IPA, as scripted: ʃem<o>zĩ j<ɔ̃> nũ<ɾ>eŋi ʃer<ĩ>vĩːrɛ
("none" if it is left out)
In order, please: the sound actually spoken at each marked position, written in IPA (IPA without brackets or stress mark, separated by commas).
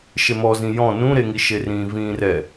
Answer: ɔ, ɔ̃, ɾ, ĩː